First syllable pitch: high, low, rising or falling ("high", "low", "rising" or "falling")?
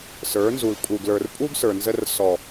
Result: rising